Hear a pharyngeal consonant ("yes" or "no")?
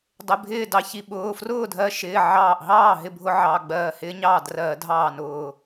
yes